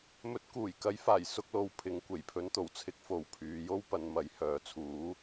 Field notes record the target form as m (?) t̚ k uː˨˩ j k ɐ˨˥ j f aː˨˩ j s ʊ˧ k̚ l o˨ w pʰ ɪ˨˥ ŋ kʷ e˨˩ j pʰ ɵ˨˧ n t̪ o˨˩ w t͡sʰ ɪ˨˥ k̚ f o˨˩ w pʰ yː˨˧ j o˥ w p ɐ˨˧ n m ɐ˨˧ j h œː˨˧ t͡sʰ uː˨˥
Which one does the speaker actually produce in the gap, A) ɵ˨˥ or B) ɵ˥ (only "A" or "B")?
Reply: A